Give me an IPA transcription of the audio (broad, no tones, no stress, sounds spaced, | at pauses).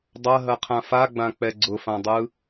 dˤ ɐ ɦ ɐ qʰ ã f a ɡ͡b ã k͡p ɛ ɡ͡ǀ ʊ f ã dˤ ɯ